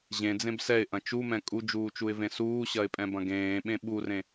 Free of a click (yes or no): yes